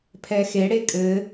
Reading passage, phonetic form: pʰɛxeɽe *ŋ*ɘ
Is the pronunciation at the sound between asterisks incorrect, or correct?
incorrect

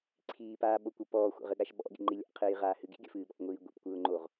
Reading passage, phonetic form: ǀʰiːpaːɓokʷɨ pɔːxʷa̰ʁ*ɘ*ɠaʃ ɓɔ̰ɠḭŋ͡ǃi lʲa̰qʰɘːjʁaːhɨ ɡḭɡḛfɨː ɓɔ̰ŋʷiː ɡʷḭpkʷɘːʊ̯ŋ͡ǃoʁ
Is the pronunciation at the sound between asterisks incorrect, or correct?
correct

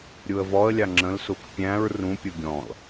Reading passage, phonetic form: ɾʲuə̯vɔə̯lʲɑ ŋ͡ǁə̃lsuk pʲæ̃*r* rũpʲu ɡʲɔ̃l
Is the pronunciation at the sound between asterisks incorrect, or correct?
incorrect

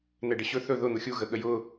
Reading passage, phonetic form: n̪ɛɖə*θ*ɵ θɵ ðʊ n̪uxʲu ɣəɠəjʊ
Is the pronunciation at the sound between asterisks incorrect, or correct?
incorrect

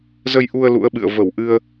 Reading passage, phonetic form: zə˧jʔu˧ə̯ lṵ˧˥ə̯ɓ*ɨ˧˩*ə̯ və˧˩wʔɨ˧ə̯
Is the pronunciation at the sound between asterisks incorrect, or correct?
incorrect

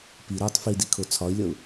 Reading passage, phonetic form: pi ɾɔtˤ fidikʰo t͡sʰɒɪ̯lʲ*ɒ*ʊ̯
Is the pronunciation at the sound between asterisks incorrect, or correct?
incorrect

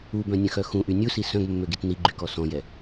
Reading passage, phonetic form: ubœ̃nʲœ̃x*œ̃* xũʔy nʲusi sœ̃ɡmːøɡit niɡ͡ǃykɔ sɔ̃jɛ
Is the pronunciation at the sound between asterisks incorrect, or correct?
incorrect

